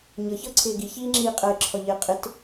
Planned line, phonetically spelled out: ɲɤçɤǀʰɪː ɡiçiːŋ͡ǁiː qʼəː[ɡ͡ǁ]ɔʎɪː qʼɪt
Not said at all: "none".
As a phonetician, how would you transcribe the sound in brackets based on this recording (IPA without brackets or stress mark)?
ǁʰ